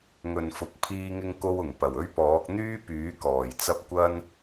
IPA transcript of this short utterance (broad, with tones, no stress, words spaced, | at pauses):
ŋɵ˨nfʊ˨˥k̚ pʰiː˥ŋɪ˥ŋko˥wʊ˨˩ŋ pɐ˨˩wɵ˥ɥpɔː˨˥k̚ n̪yː˥pyː˨˥kɔː˨˩j t͡sɐ˥p̚ kʷɐ˥n